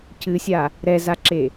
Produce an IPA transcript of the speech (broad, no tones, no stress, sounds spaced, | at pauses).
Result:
c ɨ sʲ a | ɾ ɛ z a ǁ e